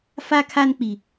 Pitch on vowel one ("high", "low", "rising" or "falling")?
high